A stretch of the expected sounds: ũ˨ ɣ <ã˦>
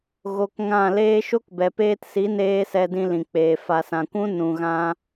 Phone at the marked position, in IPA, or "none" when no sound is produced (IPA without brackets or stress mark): ã˦